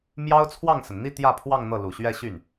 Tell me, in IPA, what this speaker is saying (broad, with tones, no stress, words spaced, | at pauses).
mjɑ˥ʊ̯t͡sʰwɑ˥˩ŋsə˩n n̪i˥˧ t̪jä˥˧pʰwɑ˥˧ŋ n̪ɤ˥˩ lu˨˩ɕɥɛ˥˧ɕy˥˩n